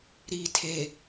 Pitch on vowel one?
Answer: low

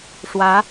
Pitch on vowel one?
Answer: rising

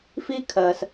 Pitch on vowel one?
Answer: high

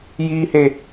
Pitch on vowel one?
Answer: high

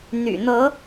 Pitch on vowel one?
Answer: low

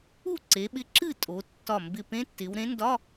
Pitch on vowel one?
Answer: falling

